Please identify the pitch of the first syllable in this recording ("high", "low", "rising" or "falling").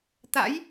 rising